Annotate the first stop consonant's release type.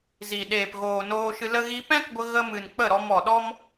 implosive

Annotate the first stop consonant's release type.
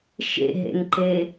click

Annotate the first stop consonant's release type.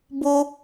plain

